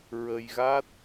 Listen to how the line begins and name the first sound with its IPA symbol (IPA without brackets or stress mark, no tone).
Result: ɹ